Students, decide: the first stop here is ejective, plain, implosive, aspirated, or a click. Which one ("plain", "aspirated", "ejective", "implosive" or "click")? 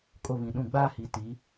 ejective